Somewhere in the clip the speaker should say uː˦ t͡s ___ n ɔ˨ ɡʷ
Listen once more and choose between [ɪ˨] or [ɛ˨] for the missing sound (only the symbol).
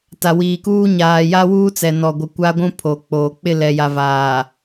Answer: ɛ˨